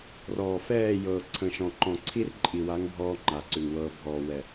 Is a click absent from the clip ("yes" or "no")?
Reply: no